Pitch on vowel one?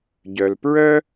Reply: low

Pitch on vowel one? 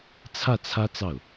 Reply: falling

